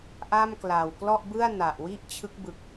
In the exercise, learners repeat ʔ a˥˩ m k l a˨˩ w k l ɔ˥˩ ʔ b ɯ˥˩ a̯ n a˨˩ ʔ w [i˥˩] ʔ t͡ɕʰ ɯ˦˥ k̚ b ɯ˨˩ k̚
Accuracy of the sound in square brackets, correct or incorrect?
correct